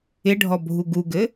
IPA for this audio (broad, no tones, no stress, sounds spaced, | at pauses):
ɪ ɖʱ ɔ bʱ u ɡ u ɡ ɘ